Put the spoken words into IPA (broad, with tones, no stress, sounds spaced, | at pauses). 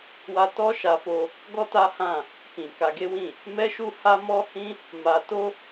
w a˧ t ɔ˦ ʃ a˧ f o˧ | ɡ ɔ˦ t a˦ h ã˦˨ | k ĩ˨ k a˧ ɡ e˦ w ĩ˦˨ | m ɛ˦ ʃ u˦ h a˦ m ɔ˦ h ĩ˦ | m a˧ t o˦